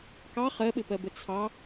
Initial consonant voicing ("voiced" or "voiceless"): voiceless